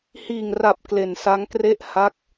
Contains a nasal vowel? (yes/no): no